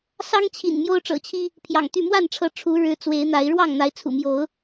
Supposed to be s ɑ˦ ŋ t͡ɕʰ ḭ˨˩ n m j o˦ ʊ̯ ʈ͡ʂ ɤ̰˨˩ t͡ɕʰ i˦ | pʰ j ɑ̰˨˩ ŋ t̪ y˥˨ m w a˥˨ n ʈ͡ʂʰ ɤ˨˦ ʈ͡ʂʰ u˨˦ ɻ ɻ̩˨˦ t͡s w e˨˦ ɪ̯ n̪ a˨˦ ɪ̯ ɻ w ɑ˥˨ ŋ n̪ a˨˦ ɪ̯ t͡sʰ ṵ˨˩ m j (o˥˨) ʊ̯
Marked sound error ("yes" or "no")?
yes